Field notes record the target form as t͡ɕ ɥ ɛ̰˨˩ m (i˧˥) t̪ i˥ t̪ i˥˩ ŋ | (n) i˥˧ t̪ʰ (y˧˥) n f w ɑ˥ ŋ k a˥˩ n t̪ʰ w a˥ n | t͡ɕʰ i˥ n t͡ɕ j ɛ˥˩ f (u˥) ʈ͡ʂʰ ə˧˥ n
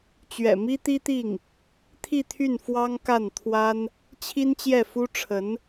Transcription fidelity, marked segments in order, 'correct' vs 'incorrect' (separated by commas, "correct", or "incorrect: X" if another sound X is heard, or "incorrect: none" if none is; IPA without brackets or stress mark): incorrect: i˥, incorrect: t̪ʰ, incorrect: y˥˩, correct